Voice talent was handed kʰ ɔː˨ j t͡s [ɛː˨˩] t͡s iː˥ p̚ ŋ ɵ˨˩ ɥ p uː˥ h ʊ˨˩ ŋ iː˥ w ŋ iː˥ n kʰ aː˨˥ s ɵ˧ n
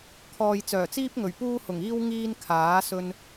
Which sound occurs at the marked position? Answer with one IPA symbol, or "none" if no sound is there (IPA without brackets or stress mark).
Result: œː˨˩